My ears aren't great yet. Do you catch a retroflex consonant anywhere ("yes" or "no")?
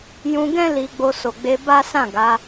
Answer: no